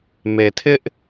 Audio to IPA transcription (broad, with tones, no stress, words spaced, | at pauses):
me˨tʰɪ˦ʔ